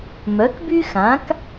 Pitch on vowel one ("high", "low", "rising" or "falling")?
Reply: rising